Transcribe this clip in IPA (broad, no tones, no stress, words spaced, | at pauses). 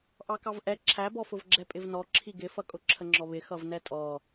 ʔɑkɑvʔɛ ǁʰæbɔfʊvɡ͡ǁɛ pʼɪvnɔ ǁʰiɡɪfʌkʼʊ ǁʰəŋ͡ǁɔβɪ xʌvnɛtʼɔ